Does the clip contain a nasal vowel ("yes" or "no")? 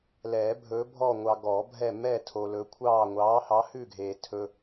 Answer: no